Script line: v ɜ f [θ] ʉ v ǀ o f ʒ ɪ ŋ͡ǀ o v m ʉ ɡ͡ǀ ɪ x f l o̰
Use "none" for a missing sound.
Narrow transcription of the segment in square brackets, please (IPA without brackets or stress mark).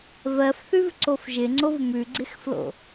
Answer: θ